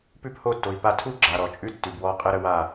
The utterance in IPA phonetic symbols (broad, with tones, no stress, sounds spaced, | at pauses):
p ʉ˦ p h o˦˨ tː o˨ i̯ p a˧ tʰ u˦ ɡ͡ǁ a˨ ɾ ɔ˨ t͡ʃʼ ʉ˦ tː ʉ˨ b w ɔ˦˨ qʼ ə˦ ɾ ə˧ w a˦˨